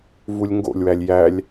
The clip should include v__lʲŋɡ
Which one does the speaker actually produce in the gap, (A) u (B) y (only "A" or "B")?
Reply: A